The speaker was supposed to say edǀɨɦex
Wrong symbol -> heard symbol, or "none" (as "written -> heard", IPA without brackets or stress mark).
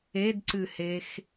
ɦ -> h